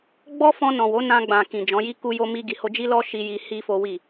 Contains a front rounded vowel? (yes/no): no